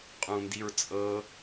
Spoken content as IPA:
qʼ ũ n d i ɹ t͡sʼ ɤ

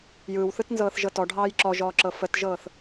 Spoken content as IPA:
j ɯː w θ ɯ t n z ɤː θ ʒ ɤ t ɔ ɖʱ ɑː j ǁ ɔ ʒ ɔː ǁ ɤ f ə t ʒ ɤː θ

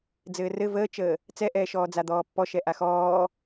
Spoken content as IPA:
d͡z ɘː r ɘ v əː t͡ʃ əː | t͡s ɛ ʔ ɛː ʃ ɔː d͡z a d̪ ɔː pː ɔ ʃ ɛ ʔ a x ɔː

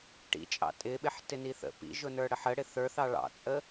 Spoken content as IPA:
ʈ ḭ t͡ʃʼ ɑ̰ tʼ ɪ ɓ ɪ ħ t ɪ n i θ ə̰ p ḭ ʒ ʊ n ə˞ ɽ ə ħ ə ɽ ɪ θ ə˞ θ ɑ ɭ ɑ̰ t͡sʼ ə

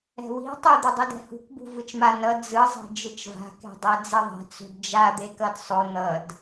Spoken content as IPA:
ɛ̤ w i̤ tˤ u d̪ u dˤ i d ɛ̤ h ṳ k b ṳ v ɯ t͡ʃ m a n ʌ d͡z ɯ zˤ e̤ d͡ʒ ɯ t͡ʃ v a̤ k ɛ̤ dˤ ɛ d͡z e ðˤ e̤ t͡s ṳ d d͡ʒ a d̪ e k ʌ d sˤ o n̪ ʌ d

